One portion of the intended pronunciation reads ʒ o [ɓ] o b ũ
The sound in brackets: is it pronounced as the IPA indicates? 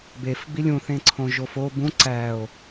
no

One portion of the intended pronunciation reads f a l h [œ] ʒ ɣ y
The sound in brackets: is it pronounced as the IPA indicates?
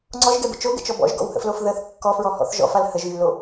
no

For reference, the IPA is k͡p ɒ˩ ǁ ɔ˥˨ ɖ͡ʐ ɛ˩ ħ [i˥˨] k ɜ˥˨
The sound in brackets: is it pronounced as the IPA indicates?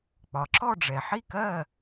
yes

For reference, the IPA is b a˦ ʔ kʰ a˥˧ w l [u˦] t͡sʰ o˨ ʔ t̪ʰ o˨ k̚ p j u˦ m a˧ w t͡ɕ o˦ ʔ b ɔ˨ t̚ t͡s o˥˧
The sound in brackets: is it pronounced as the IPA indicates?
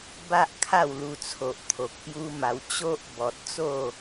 no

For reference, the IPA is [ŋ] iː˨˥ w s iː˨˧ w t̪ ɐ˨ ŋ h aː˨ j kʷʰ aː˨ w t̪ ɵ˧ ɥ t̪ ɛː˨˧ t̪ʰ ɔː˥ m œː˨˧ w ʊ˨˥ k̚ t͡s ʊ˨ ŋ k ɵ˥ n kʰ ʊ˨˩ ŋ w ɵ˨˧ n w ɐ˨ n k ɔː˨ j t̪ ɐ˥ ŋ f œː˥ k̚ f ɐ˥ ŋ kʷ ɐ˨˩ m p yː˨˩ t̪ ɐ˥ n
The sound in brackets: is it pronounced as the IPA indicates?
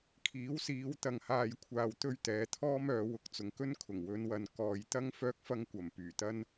no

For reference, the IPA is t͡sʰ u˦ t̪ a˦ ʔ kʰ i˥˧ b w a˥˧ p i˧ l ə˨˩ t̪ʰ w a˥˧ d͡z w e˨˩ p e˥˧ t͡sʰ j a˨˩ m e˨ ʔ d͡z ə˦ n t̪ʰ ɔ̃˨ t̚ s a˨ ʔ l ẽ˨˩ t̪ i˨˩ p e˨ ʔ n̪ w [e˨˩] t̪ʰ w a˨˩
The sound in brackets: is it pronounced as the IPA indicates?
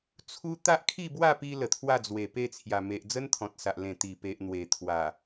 yes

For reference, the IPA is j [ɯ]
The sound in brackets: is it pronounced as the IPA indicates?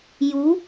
no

